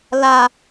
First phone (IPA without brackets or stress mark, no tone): l